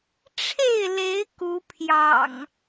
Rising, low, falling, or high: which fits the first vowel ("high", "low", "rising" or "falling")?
falling